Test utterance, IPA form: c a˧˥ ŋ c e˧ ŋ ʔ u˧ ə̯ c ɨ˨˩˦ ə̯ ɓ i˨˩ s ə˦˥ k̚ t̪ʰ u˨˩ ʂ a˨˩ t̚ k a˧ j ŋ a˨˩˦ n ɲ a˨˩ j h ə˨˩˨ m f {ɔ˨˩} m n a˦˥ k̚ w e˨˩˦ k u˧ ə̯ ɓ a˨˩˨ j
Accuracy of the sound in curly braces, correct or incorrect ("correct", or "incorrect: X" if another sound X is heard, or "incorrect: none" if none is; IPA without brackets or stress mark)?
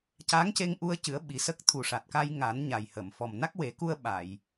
correct